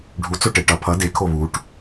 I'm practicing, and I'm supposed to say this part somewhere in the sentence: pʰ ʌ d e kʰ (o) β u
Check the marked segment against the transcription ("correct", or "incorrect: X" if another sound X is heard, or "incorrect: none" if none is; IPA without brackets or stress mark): correct